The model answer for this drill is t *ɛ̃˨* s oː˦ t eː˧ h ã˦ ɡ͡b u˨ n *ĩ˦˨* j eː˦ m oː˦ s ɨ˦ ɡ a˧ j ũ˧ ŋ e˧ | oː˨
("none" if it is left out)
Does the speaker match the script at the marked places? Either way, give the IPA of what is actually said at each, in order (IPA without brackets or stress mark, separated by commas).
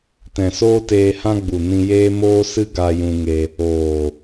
ɛ̃˨, ĩ˧